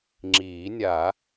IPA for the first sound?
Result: ŋ͡ǁ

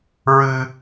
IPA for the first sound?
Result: ɹ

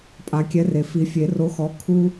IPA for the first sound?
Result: pʼ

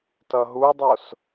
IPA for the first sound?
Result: t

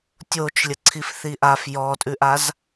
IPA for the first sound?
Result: tʲ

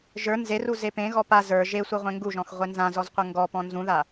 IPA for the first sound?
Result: ʒ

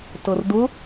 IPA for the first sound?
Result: t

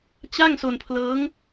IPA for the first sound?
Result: t͡ɕ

